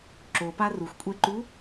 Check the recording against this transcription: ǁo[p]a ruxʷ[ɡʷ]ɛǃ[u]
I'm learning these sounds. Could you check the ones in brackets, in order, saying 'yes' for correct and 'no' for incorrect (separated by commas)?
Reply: yes, no, yes